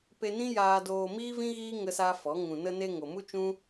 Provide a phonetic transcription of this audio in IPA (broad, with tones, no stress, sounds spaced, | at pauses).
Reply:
p e˧ n ĩ˦ j aː˧ d oː˧ m iː˦ v ĩ˦ ɣ iː˦ ŋ ə˦ s a˦ f ɔ˨˦ ŋ ũ˨ n ə˧ n e˧ ŋ o˨ m u˦ t͡ʃ ũ˦